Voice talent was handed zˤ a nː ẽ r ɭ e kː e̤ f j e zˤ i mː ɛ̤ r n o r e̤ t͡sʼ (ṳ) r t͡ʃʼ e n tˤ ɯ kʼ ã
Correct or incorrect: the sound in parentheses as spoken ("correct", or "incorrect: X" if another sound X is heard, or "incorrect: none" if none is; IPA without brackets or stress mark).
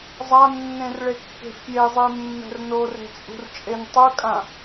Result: correct